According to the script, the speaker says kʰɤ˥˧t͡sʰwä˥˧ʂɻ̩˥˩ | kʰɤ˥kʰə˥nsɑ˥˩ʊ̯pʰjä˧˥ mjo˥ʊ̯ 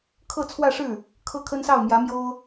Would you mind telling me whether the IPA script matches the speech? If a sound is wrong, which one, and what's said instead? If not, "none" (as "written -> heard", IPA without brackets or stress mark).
pʰ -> m